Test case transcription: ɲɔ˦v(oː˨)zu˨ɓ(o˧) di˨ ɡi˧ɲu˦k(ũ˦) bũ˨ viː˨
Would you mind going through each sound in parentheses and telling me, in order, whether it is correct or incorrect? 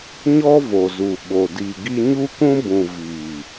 incorrect: o˨, incorrect: o˨, correct

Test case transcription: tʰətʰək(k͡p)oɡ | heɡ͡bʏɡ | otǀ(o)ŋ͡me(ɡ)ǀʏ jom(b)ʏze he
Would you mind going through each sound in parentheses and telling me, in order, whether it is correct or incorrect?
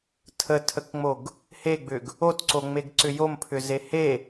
incorrect: ŋ͡m, correct, correct, incorrect: pʰ

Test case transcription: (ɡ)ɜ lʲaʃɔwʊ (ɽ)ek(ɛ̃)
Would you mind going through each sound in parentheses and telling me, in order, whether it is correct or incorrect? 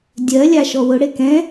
incorrect: dʲ, correct, correct

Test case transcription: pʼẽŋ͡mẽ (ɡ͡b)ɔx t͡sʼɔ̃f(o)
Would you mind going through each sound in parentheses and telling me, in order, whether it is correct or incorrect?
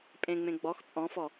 correct, incorrect: ɔ

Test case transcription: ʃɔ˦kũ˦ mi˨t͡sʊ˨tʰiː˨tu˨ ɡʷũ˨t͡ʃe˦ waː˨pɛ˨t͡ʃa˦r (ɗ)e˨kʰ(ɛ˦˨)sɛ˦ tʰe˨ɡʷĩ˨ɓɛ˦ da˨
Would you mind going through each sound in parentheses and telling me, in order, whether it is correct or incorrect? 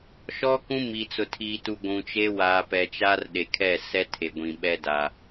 correct, correct

